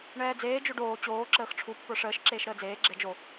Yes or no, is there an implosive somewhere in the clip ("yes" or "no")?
no